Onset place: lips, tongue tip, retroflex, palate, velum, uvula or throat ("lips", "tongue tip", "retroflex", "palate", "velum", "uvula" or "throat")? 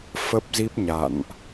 lips